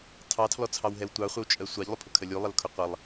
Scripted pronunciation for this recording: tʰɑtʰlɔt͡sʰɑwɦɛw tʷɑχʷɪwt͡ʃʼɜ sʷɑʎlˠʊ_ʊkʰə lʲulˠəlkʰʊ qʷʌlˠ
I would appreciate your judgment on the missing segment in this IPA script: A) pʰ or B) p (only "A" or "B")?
A